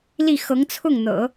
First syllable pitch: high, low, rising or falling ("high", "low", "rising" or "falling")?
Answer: falling